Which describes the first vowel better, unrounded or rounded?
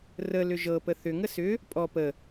unrounded